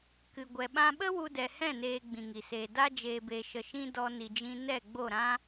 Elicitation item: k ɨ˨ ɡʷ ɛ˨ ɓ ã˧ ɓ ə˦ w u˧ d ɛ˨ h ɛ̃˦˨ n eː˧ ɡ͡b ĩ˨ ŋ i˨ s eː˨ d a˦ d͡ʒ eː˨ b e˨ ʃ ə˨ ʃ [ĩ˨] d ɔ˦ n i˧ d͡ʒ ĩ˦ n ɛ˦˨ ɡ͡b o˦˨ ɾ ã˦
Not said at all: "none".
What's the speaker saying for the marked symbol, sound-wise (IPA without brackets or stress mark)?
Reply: ĩ˧